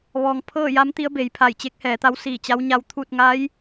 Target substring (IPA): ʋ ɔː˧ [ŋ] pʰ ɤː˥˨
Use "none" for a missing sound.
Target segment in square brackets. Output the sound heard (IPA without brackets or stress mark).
ŋ